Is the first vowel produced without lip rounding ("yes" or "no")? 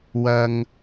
yes